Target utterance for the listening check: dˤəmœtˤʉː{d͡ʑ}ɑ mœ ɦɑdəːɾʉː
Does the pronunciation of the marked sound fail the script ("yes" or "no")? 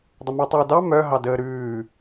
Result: yes